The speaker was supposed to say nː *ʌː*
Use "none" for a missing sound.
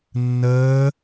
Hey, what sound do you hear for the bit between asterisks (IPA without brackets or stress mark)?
əː